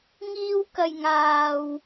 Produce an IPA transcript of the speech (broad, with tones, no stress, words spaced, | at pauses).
ŋiː˧wkɐ˨j ŋaː˨w